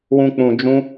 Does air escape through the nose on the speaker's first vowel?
yes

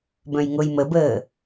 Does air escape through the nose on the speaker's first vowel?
yes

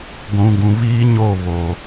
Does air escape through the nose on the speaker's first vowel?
yes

